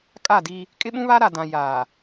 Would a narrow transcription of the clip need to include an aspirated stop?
no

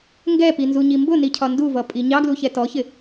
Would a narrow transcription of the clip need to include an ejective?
yes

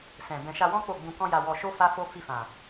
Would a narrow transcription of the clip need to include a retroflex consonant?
no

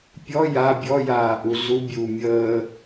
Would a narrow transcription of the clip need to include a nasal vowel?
no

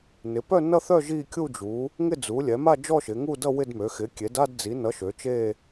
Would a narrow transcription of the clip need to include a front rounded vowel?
yes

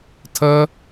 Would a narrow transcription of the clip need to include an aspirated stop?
yes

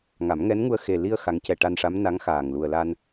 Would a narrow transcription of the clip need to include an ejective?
no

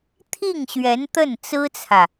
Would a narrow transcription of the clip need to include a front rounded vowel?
no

